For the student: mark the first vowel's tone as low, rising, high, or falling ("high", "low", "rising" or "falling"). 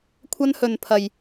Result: high